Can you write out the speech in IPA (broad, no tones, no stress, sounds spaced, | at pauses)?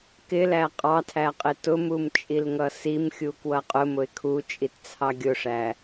k ɪ l æ qʼ ɑ tʰ æ qʼ ɪ t ʊ m u m t͡ʃʼ i l ŋ ʌ s i m xʲ u k w ʌ qʼ ʊ m ʊ ɪ̯ kʰ u t͡ʃʼ i t t͡sʰ ɑ ɡʲ ʊ ʂ æ